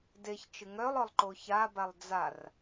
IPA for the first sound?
d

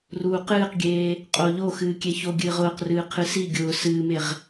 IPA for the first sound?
r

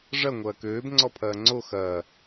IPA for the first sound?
ʐ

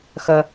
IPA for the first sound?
x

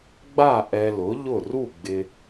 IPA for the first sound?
ɡ͡b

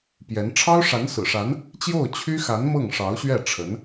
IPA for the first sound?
p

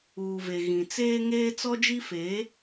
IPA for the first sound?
uː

